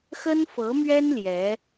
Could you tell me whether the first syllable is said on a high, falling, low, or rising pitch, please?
high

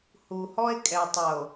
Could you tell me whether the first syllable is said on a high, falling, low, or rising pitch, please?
low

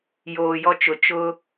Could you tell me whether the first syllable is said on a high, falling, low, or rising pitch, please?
low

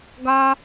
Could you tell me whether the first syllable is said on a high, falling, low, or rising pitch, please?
high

